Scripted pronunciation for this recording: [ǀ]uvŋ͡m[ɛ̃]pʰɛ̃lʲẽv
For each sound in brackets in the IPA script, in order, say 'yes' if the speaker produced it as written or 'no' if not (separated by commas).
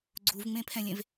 no, no